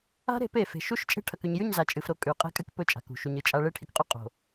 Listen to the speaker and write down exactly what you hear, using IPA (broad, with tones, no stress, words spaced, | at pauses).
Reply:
a̤˦ɾe̤˨˦pe˨ fe̤˨ʃu˦ʃt͡ʃʼe̤˦ ʈʰɐ˨kʉ˨ɲjʉ˦˨ɲza˨ t͡ʃʼɨ˨fɾo˦ kʼʉ˨ qʼe̤˦kʼɨ˦k pɵ˦t͡ʃʼa̤˨kṳ˨ ʃu˨ɲɨ˨t͡ʃʼa˦ ɭe˦ʈʰi˨kqʼu˦ qʼo̤˨